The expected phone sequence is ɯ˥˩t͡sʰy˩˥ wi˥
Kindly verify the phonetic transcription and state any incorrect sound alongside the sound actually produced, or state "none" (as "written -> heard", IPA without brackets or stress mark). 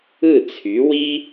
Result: none